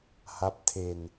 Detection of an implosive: absent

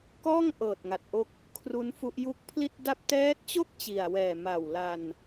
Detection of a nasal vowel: absent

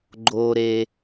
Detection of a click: present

